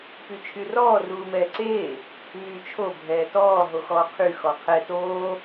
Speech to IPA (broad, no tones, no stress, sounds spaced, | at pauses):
p y t͡ʃʰ y r ɔː r uː m ɛː ǀ eː | m yː t͡ʃʰ o bʱ ɛː t ɔː ɦ o x ɔː qʰ y x ɔ qʰ ɛ t oː